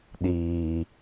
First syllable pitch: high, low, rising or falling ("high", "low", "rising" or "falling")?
low